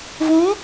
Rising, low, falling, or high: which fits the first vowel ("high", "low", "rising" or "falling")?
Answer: rising